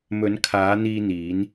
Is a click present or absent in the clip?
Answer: absent